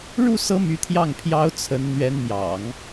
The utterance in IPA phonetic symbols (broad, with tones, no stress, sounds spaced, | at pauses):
ɻ u˥˩ s ɤ˧˥ m y˧˥ t̪ʰ j ɑ˥˩ ŋ pʰ j ɑ˧˥ ʊ̯ t͡sʰ ə˧˥ n n̪ ɥ ɛ˧˥ n m j ɑ̰˨˩˦ ŋ